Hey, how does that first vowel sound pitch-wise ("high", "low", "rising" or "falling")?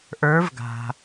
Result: rising